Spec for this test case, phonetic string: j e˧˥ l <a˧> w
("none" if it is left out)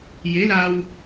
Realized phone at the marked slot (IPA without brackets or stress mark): a˧